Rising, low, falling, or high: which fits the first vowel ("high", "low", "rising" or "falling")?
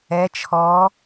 rising